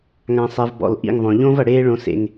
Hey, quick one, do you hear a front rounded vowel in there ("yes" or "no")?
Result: no